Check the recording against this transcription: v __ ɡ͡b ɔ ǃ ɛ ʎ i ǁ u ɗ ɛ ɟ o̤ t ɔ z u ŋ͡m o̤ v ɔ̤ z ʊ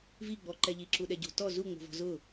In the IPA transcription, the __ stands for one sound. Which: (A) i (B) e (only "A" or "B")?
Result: A